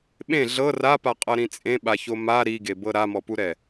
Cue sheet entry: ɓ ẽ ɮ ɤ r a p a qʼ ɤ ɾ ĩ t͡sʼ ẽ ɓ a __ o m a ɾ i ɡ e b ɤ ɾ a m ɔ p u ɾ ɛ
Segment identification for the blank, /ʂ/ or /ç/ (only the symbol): ç